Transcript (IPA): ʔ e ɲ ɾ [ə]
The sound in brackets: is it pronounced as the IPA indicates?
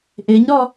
no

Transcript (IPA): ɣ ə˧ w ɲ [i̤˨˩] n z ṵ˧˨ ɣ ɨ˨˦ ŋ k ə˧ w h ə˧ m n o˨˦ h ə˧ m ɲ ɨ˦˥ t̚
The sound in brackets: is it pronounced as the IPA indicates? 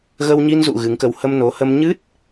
no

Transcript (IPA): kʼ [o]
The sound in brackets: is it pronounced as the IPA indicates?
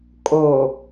yes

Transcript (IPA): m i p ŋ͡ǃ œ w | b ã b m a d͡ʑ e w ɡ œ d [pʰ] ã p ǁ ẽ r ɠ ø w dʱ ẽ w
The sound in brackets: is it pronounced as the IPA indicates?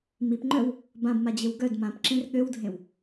no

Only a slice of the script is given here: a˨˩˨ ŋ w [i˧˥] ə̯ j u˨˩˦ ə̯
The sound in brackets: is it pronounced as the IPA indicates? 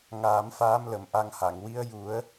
yes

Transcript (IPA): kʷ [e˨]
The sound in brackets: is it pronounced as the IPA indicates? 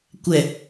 no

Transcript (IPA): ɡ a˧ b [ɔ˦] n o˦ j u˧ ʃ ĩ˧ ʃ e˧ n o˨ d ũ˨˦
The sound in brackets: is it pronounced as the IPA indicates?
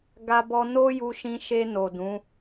no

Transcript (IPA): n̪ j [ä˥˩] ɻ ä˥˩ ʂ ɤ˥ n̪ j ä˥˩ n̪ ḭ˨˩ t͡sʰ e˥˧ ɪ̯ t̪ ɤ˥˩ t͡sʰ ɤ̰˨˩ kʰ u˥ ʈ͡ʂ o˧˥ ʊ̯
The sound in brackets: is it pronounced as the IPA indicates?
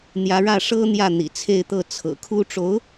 no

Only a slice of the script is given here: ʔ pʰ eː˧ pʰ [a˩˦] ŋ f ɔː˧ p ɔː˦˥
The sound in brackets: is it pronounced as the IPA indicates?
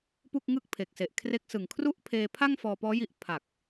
no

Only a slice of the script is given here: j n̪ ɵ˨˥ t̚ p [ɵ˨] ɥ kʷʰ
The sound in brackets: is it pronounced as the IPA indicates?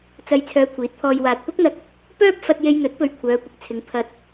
yes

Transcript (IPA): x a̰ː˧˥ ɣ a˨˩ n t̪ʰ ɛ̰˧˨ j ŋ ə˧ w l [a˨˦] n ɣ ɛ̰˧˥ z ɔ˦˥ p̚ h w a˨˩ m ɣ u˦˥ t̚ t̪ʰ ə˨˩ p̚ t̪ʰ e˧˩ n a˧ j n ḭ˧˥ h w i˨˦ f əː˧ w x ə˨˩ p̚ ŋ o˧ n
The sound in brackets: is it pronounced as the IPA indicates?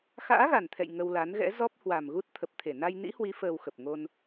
yes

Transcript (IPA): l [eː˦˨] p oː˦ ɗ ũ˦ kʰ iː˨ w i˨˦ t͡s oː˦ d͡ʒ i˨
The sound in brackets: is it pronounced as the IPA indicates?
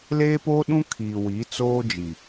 no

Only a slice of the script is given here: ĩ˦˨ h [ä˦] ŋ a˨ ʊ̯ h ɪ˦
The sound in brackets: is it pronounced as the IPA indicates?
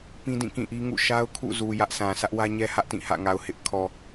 no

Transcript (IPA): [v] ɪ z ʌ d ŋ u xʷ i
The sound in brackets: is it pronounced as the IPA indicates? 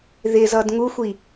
no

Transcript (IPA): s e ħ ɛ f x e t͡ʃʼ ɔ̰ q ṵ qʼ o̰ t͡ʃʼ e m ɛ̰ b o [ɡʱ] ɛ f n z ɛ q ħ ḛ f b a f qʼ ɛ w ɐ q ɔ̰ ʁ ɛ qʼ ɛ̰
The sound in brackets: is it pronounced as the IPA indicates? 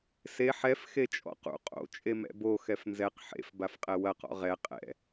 no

